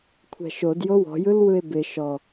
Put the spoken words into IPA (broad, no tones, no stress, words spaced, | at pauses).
kʷʰɛ̤ʃod jowɔ̤jɯlwɯe̯ bɪ ʃɔ